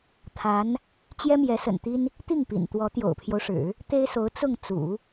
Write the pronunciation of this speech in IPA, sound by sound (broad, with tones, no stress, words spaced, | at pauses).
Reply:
t̪ʰa˧˥n | t͡ɕjɛ˥mjɛ˧˥sə̰˨˩nt̪i˥n | t̪i˥˩ŋpḭ˨˩n t̪wɔ˧˥ t̪jo̰˨˩ʊ̯pʰjo˦ʊ̯ʂɻ̩˨˩˦ | t̪e˥ɪ̯so˧˥ʊ̯ t͡sʊ˥˩ŋ t͡sṵ˨˩˦